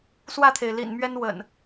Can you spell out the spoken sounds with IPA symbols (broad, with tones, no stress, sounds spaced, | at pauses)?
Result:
s w ä˥˨ t̪ʰ e˩ ɪ̯ l ḭ˨˩ n m ɥ ɛ˦ n w ə̰˨˩ n